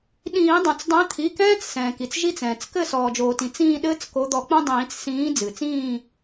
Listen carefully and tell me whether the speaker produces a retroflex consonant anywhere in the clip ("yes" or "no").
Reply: no